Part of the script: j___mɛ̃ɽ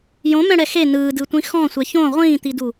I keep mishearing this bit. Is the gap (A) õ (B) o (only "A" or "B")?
A